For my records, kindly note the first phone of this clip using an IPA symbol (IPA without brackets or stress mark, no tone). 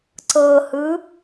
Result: ǀ